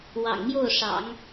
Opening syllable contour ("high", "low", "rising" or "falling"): low